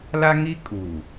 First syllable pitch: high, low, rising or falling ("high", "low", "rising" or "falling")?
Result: high